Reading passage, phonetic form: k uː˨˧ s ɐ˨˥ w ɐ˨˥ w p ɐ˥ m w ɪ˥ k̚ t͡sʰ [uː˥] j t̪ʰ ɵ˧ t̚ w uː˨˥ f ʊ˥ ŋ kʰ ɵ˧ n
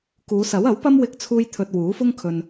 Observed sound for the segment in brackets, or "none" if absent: uː˥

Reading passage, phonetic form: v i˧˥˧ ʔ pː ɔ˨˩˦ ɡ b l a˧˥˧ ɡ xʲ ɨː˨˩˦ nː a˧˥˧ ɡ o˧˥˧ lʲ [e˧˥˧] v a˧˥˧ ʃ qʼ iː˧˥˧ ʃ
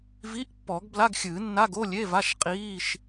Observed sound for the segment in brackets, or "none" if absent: e˧˥˧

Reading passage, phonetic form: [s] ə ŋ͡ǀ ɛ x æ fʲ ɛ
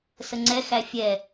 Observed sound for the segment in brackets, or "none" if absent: s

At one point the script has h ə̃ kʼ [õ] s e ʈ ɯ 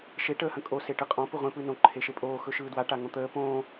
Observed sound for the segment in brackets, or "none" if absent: o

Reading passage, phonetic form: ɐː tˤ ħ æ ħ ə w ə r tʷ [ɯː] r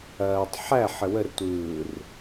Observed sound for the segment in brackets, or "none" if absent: ɯː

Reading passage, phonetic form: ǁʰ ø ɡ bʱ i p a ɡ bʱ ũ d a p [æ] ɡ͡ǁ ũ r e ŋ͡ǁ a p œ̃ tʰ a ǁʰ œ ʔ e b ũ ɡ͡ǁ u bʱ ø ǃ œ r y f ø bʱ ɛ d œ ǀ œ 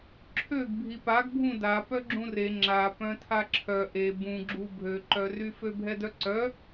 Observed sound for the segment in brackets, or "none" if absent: œ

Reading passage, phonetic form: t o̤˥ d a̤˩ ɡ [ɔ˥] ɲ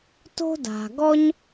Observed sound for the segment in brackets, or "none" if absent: ɔ˥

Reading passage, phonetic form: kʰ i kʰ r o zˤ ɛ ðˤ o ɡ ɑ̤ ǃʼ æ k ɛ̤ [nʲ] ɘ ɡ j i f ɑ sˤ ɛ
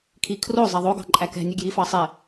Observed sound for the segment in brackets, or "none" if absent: nʲ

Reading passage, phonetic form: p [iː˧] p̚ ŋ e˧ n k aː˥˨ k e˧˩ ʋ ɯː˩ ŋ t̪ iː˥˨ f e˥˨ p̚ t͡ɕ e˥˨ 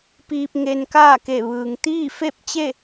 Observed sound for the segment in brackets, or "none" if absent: iː˧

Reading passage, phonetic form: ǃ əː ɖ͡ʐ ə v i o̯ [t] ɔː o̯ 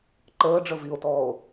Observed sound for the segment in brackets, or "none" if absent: t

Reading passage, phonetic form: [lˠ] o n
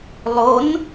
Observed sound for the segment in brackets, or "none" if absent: lˠ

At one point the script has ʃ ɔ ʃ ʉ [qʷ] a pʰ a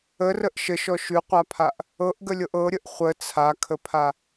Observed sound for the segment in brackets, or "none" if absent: qʷ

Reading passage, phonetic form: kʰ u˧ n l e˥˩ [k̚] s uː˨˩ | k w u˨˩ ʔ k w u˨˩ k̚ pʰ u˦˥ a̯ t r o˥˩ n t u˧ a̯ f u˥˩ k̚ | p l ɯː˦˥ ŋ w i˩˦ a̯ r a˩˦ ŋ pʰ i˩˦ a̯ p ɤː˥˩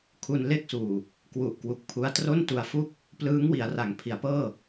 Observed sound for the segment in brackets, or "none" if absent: k̚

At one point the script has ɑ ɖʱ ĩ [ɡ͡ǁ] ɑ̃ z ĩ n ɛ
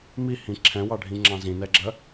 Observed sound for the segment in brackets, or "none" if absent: ŋ͡ǁ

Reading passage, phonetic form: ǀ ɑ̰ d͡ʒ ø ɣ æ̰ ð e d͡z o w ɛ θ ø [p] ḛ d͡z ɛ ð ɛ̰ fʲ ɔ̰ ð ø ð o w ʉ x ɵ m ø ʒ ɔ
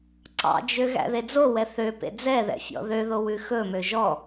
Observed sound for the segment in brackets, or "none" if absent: p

